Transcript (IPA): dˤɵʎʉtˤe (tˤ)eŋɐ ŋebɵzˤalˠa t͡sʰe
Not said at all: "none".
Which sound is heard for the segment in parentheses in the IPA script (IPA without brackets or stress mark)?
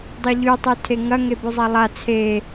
tʰ